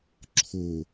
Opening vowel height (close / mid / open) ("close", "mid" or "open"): mid